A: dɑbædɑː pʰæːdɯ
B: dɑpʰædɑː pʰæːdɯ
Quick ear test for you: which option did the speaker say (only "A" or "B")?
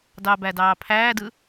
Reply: A